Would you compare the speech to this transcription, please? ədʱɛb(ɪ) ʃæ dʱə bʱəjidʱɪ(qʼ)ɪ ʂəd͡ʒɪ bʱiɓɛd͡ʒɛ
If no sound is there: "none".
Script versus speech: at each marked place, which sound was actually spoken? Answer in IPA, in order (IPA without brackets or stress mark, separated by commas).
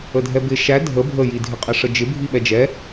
ɪ, qʼ